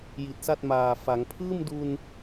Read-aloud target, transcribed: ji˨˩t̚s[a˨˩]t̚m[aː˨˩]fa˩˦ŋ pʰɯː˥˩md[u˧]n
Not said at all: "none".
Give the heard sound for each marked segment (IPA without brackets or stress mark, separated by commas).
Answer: a˥˩, aː˨˩, u˧